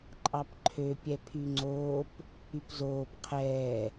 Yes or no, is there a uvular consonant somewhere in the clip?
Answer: yes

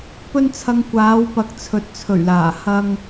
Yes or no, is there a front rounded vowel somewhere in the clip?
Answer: no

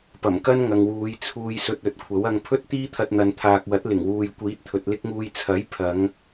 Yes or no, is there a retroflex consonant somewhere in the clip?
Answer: no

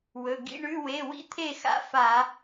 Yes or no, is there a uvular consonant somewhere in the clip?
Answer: no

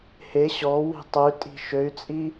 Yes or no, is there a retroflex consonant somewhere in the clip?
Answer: no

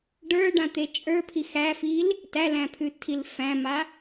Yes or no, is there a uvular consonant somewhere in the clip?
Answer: no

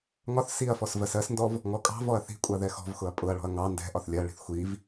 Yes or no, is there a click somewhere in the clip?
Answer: no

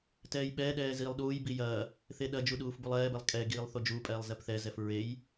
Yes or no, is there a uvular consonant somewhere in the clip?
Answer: no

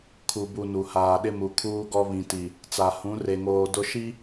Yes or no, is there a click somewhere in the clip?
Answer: no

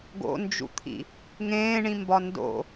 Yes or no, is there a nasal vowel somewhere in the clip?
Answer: yes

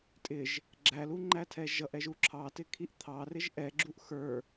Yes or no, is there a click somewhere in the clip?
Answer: yes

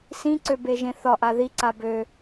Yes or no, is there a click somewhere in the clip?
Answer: yes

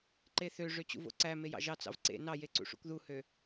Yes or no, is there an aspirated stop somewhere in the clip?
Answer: no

